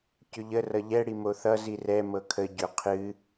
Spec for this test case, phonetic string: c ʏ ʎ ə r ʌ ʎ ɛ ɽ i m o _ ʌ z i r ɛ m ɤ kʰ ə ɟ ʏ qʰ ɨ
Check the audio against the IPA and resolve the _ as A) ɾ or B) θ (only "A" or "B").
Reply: B